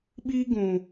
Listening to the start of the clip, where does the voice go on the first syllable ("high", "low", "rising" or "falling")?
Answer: high